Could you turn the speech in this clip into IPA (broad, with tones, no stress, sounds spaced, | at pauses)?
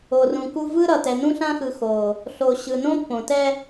o˨ r ũ˨ k u˦ v ɯ˦ ɾ ʌ˨ t ɛ˨ n ũ˦ ɬ ã˦ x ɯ˨ x o˨ | ɬ o˨ ɕ ɯ˨ n õ˦ pː õ˨ t ɛ˦